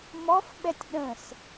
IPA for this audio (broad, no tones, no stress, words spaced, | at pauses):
mɔfɓɛtʲ ɗə̃s